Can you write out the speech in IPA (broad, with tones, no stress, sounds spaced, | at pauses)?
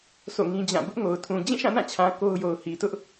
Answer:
s o̰˦˨ ŋ ĩ˦ d͡ʑ ã˦˨ b ʊ˦ ʔ ŋ o˨ ʊ̯ tʰ ũ˨ d͡ʑ ĩ˦˨ ʃ ã˦˨ n ã˦˨ t͡ɕʰ ã˨ k o˦ ʊ̯ j o˨ ʊ̯ h i˨ t ʊ˦ ʔ